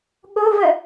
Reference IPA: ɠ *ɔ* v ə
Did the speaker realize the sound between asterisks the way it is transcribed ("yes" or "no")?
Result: no